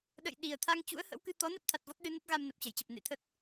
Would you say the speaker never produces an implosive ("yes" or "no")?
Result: no